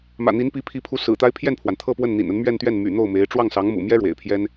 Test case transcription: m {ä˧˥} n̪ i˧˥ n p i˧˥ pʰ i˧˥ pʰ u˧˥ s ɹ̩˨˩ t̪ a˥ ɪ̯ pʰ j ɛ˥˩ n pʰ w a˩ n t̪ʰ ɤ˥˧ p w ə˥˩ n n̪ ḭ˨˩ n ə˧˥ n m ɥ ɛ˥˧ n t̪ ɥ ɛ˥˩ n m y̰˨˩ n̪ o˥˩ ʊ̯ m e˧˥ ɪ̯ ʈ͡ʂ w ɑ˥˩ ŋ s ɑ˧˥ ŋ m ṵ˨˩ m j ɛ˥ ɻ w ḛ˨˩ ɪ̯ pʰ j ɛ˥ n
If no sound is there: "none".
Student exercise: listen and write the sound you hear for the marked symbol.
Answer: ä̰˨˩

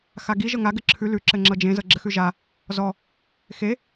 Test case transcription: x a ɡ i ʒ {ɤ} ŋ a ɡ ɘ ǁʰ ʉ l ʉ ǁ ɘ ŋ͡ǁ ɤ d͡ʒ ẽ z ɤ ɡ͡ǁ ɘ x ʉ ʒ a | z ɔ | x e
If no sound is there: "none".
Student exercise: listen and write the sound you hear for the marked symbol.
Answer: ɤ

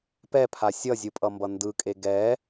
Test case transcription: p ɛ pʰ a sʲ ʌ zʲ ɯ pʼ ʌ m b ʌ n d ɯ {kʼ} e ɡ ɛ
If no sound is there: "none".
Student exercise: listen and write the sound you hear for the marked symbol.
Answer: kʼ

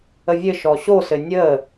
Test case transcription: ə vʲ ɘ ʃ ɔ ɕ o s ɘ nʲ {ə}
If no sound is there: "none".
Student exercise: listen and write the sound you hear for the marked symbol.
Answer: ə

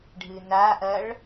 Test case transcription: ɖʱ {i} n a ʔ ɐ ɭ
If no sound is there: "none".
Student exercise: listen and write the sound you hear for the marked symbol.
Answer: ɨ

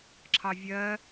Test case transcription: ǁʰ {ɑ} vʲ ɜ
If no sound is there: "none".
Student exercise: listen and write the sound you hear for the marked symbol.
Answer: ɑ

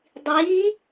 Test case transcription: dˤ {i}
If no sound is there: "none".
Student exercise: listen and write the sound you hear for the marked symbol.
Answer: iː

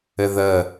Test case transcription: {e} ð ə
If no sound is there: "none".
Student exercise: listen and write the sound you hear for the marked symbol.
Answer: ɘ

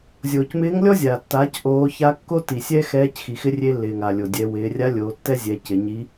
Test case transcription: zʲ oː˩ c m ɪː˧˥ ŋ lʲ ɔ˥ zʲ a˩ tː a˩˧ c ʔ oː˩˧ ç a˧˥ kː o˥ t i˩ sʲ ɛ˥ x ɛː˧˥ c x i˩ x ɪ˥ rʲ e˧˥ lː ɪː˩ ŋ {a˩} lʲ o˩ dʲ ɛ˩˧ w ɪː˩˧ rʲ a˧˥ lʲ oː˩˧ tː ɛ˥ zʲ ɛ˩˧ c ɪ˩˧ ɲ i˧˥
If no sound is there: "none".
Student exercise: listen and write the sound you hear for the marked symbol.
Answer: a˩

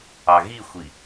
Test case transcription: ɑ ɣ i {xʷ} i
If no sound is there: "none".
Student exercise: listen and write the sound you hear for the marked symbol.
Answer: xʷ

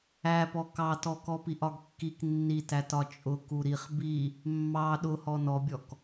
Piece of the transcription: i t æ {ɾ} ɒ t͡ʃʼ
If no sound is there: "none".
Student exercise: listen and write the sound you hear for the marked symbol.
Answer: t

